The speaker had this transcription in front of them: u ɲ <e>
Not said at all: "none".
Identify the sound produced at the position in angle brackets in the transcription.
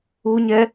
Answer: ɛ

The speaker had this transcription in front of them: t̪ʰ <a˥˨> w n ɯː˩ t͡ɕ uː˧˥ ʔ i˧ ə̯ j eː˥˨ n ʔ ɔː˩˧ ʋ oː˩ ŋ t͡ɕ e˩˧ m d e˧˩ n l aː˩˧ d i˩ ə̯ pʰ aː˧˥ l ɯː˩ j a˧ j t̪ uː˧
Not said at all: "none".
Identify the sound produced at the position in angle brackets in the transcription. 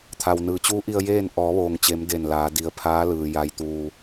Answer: a˩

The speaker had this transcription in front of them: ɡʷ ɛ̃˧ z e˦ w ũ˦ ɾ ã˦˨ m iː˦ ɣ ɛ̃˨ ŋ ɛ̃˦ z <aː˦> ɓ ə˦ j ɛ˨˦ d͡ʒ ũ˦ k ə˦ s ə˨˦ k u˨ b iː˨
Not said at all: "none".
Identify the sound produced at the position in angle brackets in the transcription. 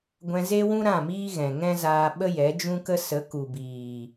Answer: aː˧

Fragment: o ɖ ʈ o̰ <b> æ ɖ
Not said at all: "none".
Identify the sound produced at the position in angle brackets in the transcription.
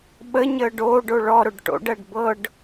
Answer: ɖ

